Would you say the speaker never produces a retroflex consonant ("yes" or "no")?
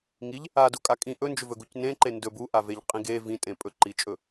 yes